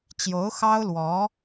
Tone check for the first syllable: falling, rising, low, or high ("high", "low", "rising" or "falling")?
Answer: rising